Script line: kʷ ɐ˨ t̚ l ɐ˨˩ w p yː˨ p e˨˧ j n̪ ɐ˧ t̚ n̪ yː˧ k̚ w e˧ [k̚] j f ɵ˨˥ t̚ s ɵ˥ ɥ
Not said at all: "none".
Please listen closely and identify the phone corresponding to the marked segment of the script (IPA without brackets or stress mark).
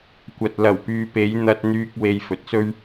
none